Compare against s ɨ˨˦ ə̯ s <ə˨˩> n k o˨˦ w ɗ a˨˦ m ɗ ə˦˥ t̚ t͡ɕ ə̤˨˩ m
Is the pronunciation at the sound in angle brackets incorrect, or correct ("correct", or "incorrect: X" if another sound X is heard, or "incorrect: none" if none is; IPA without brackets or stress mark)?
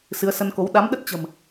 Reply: incorrect: ə˧